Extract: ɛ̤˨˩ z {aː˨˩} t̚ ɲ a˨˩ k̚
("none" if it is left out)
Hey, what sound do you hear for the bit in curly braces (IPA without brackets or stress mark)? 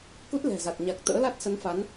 a˨˩